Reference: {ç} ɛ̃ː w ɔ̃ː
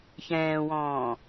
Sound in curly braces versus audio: correct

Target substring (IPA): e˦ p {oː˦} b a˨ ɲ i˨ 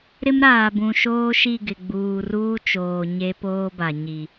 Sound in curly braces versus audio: correct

